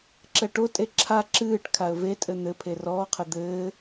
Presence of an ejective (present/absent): present